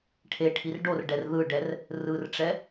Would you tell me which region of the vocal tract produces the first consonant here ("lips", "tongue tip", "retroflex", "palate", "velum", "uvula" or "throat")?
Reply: retroflex